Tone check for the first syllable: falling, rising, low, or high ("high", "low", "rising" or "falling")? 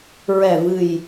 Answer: low